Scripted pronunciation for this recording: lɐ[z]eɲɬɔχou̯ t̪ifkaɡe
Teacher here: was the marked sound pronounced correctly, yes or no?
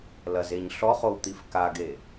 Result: yes